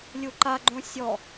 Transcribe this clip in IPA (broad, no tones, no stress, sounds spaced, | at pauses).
lʲ u ǃ a ɡ͡ǃ õ sʲ ɔ